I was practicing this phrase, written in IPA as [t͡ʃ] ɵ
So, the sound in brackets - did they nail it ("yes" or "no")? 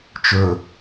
yes